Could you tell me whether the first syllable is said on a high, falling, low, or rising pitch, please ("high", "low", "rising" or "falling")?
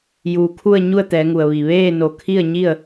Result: low